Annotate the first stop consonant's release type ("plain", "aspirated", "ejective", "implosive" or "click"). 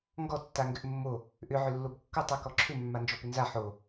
plain